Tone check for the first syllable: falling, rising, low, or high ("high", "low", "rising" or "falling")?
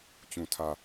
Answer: low